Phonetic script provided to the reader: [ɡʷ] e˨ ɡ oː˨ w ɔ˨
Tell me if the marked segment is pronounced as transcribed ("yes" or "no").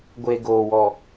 yes